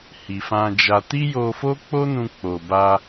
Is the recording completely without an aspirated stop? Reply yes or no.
yes